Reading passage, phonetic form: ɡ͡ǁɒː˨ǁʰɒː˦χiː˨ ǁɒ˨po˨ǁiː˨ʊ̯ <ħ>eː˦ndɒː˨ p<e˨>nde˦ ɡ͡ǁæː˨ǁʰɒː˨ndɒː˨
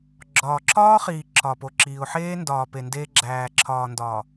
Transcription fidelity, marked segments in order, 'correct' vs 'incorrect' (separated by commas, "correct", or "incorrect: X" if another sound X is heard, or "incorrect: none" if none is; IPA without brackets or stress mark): correct, correct